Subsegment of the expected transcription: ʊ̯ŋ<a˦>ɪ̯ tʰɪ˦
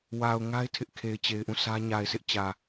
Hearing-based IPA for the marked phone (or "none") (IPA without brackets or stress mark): a˦